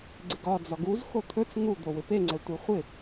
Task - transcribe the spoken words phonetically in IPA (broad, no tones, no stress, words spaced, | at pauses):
ɡ͡ǀɪɡɒ d͡zɒɡuz xot̪ʰɵt͡s ŋud̪o wɪpeŋ͡ǀɛ tʷeχʷɪ